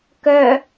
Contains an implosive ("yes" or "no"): no